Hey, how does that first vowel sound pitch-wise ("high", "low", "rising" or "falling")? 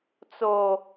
low